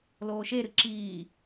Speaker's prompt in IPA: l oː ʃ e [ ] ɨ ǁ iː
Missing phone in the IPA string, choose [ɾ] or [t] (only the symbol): ɾ